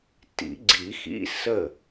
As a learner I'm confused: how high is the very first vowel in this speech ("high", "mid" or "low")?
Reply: high